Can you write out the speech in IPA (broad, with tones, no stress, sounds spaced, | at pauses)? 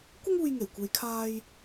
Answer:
kʷ ɪ˥ ŋ uː˧ j ŋ e˨˩ j kʷ e˨˧ j kʰ aː˧ j